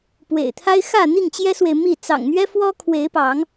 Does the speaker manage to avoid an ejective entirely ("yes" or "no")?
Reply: yes